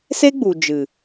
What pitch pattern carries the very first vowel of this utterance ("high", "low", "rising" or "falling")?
high